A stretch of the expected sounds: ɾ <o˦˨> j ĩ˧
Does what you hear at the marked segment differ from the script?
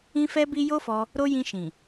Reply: yes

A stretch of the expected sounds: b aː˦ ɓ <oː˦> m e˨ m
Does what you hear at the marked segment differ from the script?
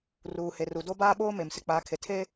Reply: no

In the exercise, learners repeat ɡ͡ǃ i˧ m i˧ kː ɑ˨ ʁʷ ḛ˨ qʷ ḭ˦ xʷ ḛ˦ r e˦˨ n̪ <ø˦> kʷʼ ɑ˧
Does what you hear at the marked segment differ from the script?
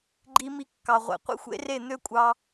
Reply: no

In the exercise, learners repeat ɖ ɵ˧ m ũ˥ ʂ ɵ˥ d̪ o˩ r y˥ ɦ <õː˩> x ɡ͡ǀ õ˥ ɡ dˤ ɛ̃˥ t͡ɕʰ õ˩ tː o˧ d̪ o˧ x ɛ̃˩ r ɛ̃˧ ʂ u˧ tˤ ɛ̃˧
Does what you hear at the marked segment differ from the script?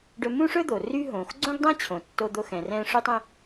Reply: yes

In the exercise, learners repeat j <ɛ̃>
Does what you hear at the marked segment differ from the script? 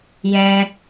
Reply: no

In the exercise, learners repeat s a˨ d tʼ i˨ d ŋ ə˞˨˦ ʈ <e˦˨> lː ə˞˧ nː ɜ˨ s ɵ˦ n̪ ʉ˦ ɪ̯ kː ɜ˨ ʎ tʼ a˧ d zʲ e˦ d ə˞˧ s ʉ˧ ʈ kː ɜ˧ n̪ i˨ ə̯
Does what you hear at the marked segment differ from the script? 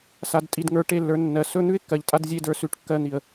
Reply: no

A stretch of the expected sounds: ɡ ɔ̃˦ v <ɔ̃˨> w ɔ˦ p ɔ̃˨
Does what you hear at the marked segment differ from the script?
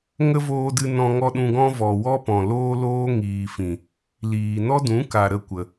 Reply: yes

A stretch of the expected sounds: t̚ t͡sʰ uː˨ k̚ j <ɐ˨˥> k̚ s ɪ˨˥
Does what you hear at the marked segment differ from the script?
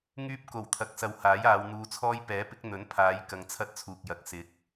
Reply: no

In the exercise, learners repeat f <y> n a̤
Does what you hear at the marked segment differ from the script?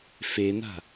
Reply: yes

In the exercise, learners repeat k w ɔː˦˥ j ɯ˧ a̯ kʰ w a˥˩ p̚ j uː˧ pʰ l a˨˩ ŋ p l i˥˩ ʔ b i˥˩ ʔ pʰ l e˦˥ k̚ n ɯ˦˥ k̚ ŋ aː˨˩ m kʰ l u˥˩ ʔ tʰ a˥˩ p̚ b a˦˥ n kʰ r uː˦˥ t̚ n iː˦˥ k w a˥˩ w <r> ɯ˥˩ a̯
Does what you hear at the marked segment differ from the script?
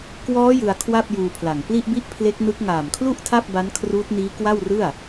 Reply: no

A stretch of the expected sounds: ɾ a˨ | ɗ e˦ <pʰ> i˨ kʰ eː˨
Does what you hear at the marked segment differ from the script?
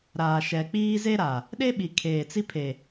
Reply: yes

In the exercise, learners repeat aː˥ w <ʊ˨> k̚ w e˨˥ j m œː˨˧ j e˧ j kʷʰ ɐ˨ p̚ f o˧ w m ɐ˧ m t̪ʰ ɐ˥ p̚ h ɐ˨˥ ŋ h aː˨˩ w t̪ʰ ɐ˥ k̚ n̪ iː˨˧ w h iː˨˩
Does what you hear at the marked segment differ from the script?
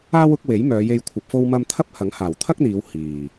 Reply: yes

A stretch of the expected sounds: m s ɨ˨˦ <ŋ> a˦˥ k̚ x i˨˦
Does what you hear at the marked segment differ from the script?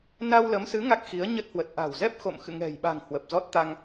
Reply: no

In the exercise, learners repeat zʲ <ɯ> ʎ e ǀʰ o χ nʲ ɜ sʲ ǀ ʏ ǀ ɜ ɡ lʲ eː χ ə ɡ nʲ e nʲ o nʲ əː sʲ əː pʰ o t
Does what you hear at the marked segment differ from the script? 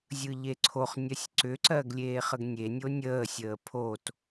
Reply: no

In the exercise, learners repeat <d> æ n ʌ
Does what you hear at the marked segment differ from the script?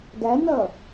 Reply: no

